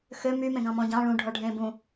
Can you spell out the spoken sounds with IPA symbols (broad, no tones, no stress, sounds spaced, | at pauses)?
x ø m y m ẽ ɡ ɑ̃ m ɔ̃ ɟ ɑ̃ ɭ ũ ɖʱ ɔ ɖʱ ẽ b ũ